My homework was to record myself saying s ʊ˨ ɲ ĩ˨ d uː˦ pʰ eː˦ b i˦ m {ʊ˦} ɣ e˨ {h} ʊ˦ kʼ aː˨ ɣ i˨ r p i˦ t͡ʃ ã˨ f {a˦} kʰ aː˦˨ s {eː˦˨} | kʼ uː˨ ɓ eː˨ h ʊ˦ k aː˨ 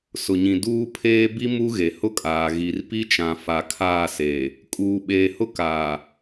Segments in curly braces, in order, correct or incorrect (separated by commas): incorrect, correct, incorrect, incorrect